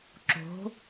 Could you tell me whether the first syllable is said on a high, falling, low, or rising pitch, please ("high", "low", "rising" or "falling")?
rising